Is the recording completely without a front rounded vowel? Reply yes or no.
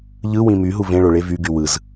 no